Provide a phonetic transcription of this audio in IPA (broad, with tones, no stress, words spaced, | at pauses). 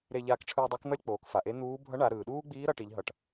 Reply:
ɾe˧ʎaː˧kʈ͡ʂʰɯː˧ dˤo˧˥k n̪ʌ˥lʲk͡poː˩˧k fa˩ʔe˧˥n̪uː˧˥ bʱʌ˧˥ɳa˩˧ ɾɯː˩ ɗuː˥ɡ͡biː˧˥ ɾʌ˩˧ʈi˩˧ʎ ɦʌ˩ʈ